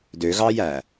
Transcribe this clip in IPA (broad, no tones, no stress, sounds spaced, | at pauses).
d ø ɣ ɑ j æ